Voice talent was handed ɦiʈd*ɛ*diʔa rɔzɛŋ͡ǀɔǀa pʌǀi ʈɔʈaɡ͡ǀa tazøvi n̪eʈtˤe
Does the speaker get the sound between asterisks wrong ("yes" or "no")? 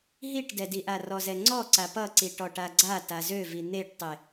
no